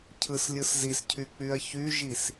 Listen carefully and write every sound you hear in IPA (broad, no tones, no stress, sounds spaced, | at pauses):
cʰ ɯ s lʲ ɯ s z i s cʰ y k͡p y ɐ̯ ç y ʒ i s